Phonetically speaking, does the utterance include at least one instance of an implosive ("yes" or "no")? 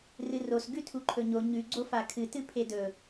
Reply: no